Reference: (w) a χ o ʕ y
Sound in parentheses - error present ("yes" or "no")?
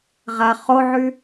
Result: yes